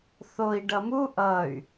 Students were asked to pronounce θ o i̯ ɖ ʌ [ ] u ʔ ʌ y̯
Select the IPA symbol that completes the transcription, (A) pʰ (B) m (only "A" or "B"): B